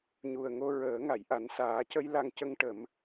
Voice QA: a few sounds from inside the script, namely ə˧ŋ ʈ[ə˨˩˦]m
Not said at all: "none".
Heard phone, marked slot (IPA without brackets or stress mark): ə˨˩˦